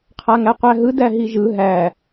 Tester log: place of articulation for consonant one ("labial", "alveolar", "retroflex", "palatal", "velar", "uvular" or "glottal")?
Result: uvular